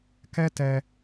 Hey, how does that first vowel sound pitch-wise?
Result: high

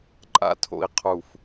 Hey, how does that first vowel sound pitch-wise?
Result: high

